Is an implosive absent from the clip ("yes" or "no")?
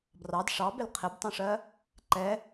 yes